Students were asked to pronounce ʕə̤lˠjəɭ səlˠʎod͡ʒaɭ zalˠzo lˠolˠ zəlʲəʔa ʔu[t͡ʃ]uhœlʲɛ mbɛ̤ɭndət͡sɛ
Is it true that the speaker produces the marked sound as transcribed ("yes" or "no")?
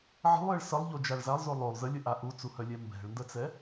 no